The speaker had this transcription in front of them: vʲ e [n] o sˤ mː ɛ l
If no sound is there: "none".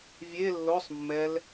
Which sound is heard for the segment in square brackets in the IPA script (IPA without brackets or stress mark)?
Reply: lː